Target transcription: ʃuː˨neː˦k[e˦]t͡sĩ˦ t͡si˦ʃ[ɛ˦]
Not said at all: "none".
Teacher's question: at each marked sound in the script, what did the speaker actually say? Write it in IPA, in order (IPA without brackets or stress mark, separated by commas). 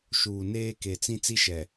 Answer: e˨, ɛ˨